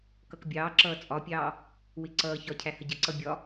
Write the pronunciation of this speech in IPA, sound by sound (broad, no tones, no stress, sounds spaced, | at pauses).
k ʌ k bʲ ɑː ǁ ʌː t͡sʼ ɒ pʲ ɑː | w ɪ ǀ ʌː ç ɒ cʰ æ h ə ɟ ə ǀ ʌ bʲ ɒ